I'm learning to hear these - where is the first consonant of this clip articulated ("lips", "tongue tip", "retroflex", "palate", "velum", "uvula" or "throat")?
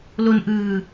tongue tip